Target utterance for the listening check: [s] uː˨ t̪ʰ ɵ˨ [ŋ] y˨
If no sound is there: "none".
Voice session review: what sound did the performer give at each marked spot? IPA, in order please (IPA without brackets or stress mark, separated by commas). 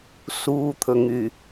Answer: s, ŋ